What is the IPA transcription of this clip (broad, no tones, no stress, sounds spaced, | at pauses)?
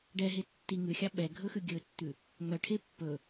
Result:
ɖ ɛ ɦ e tː i ŋ ʉ xʲ ɑ ɓ ɛ ɡʱ ɵ x ʉ ɡʲ ɵ tː ʉ | ŋ œ ʈʰ e pː ɵ